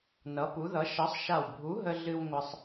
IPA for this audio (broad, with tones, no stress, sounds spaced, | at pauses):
n ʌ˨˥ p u˨˥ ð ʌ˨˥ ʃ ɐ˨˥ sˤ ʃ a˧˩ w bʱ u˨˥ ɦ ə˧ ɮ ɨ˧ w ŋʷ ɐ˧ sˤ